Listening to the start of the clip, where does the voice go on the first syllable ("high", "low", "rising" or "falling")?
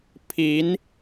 rising